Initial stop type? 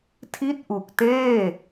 aspirated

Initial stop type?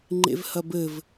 click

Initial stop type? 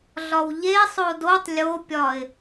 plain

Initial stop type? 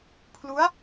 aspirated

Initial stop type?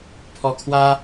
aspirated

